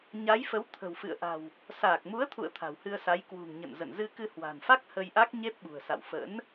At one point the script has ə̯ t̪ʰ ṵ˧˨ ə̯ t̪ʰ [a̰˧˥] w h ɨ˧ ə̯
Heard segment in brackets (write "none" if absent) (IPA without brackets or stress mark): a̤˨˩